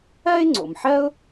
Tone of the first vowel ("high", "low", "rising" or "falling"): high